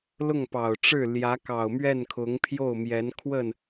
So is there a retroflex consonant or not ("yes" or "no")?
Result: yes